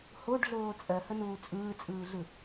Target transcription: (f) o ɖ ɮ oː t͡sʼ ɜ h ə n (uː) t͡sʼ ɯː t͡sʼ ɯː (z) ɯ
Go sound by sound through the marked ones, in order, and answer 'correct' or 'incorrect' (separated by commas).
incorrect, correct, incorrect